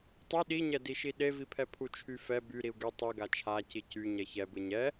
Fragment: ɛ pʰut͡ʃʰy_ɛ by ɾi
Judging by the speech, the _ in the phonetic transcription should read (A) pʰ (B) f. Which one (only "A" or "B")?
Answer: B